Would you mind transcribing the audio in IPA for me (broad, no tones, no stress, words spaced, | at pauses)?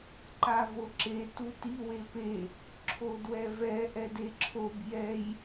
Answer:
ǃavoǁe tuti wepe | ǁʰodwɛvɛ ʔɛdeǁʰob jɛj